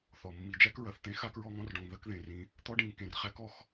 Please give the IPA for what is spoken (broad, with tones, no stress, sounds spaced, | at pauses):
θ ɔ˩ mː i˨ d͡ʒ æ˥ k ɹ ɐ˩ θ t̪ ẽ˥ x a˥ k ɹ ɔ˥ ŋ ɔ̃˦ r ɖ ɔ̃˨ ŋ ð ɐ˦ k ð ẽ˩ r ĩ˨ | t̪ ɔ˥ ɖ ĩ˨ ŋ k ẽ˩ r χ æ˦ k ɔ˨ x